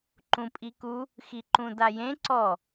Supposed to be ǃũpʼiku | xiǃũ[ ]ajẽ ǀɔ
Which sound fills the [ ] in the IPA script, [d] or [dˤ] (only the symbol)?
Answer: d